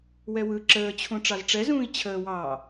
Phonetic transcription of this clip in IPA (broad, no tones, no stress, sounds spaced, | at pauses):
w ɛ w ɯ ǁ əː t͡ɕʰ ũ ʈ͡ʂ ɑ z ʈ͡ʂ ɛ z ũː i̯ t͡ɕʰ əː w ɑː